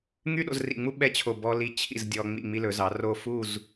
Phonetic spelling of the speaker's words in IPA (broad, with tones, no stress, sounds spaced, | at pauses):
ŋ y˥ ɗ o̰˧ z r ḭ˧˩ ŋ͡m u˥ ɓ ɛ˥ t͡ɕʰ o˧˩ b ɔ˧ l i˧ t͡ɕʰ ḭ˧˩ z dʲ ɔ˧ ŋ͡m ḭ˧˩ ŋ͡m i˧ l ɵ˩˧ z ɑ˩˧ r o˥˧ f u˥˧ z